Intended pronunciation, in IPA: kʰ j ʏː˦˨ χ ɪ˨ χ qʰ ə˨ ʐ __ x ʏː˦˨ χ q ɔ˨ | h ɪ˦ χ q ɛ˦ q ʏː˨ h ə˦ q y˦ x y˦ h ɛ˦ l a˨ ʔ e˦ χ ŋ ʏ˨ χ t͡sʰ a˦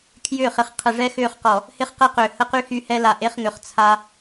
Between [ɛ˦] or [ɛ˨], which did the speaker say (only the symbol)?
ɛ˦